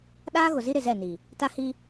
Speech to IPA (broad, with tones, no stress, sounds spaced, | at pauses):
ɗ aː˦ ɣ ʊ˨ z i˦ ɾ ɪ˨ z ɛ˦˨ n i˨ | t a˦ h i˦